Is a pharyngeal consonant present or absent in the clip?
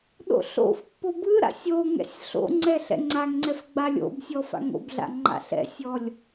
absent